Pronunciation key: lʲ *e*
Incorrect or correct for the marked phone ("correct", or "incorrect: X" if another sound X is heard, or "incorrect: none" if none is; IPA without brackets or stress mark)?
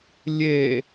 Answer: correct